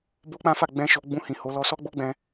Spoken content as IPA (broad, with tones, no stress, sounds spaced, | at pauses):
b o˦ k͡p ã˦ f a˦˨ ɡ͡b ɛ̃˧ ʃ o˧ ɡ͡b ũ˧ h ĩ˨ h o˨˦ l ɔ˧ s ɔ˦ ɡ͡b o˦ ɡ͡b ɛ̃˧